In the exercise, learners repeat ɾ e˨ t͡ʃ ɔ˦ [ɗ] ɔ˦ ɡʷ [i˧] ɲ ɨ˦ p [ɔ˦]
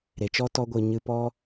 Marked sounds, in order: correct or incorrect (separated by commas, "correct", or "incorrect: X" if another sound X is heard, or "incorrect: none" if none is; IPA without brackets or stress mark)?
incorrect: t, incorrect: ɨ˧, correct